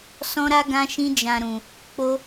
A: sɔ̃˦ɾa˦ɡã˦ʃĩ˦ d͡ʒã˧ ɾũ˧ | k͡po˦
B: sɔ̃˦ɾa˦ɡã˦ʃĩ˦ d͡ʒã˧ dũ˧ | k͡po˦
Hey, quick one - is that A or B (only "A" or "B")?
A